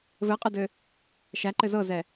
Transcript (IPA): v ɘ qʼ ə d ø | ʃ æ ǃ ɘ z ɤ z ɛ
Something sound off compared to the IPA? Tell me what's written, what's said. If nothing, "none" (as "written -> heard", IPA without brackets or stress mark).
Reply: ø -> ɘ